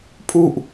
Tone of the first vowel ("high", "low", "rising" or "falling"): falling